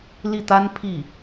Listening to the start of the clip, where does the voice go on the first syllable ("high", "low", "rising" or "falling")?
falling